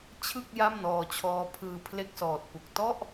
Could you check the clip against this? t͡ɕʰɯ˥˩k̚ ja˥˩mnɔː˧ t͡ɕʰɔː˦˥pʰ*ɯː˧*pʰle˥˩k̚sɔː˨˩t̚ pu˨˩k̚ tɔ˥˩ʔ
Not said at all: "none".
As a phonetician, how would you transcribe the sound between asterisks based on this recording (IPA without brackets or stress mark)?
ɯː˧